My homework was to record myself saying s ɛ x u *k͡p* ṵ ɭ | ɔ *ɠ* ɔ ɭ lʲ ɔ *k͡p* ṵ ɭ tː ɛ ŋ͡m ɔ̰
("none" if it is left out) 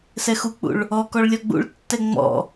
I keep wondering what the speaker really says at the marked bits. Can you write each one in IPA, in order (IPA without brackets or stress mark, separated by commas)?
k͡p, k, ɡ͡b